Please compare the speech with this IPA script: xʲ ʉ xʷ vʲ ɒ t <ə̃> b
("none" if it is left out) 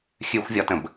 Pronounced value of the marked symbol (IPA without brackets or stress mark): ə̃